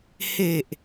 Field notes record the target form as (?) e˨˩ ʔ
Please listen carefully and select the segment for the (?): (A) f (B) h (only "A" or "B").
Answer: B